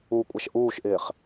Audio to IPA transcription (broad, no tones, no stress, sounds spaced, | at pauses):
u kʷʼ a ʃ ʔ uː ʃ ʔ ɪː χ